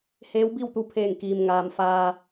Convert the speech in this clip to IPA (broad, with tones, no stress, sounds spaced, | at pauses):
h eː˧˥ w b i˥˨ w t̪ u˧ pʰ eː˧˩ ŋ k iː˩ m ŋ aː˩ m f aː˩